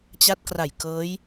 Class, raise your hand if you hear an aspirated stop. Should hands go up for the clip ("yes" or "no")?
no